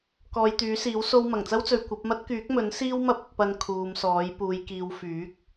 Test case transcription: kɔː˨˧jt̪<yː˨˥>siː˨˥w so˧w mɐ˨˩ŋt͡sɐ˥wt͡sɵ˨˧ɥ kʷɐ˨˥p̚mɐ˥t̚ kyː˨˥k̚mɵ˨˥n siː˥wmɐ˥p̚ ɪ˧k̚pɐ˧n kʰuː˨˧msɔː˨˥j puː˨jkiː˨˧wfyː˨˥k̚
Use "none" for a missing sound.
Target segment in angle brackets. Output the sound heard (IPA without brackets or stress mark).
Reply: yː˨˥